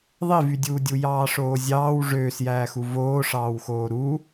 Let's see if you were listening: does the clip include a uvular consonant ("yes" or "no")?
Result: no